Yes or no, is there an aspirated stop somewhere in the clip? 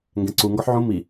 no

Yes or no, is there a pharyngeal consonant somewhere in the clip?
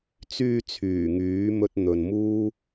no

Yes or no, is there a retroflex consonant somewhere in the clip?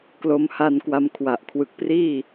no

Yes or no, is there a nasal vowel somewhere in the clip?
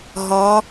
yes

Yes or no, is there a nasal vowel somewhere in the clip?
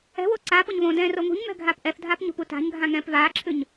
yes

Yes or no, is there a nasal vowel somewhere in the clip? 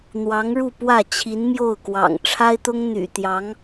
no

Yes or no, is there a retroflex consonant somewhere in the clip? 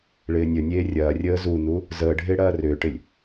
yes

